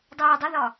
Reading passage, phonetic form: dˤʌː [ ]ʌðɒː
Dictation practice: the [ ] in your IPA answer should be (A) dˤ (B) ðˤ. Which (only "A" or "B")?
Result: A